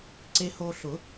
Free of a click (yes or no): no